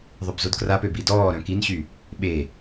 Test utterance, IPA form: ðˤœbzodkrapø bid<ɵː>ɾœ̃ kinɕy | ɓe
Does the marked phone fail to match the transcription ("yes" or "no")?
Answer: yes